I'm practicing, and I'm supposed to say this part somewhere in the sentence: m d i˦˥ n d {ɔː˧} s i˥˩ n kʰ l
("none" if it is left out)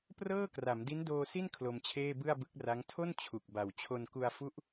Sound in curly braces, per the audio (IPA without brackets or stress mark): oː˧